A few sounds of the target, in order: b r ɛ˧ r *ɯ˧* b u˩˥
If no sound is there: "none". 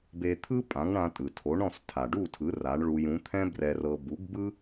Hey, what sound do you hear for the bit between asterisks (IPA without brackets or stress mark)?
ɤ˧